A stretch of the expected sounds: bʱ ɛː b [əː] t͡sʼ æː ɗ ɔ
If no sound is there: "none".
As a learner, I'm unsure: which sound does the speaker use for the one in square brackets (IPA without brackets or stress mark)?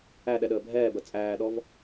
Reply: ə